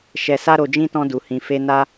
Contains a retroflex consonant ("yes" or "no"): no